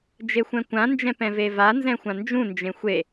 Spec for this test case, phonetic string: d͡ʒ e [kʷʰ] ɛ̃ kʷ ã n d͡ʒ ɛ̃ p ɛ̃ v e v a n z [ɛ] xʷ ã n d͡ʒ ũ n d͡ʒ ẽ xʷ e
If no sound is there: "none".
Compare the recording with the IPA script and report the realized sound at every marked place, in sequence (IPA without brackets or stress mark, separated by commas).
xʷ, ɛ̃